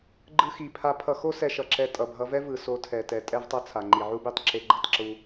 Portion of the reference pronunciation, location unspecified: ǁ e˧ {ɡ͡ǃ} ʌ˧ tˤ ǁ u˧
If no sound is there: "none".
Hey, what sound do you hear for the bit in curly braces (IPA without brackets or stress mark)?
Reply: ɡ͡ǃ